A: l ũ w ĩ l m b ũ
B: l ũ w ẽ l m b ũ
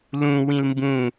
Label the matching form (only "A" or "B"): A